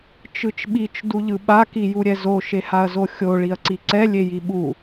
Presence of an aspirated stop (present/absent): absent